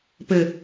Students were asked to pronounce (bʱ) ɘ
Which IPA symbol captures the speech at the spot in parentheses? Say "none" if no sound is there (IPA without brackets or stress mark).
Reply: p